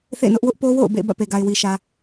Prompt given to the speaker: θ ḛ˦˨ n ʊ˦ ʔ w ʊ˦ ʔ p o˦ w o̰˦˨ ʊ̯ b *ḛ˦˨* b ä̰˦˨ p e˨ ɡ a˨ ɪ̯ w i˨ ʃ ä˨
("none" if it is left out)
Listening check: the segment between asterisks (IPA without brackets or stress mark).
ḛ˦˨